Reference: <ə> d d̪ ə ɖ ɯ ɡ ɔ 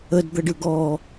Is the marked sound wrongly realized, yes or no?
no